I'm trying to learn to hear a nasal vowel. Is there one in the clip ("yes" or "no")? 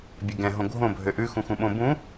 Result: yes